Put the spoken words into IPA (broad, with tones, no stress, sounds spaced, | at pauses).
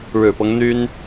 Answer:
ɻ ɻ̩˨˩ p ɤ˦ ŋ n̪ y˥ n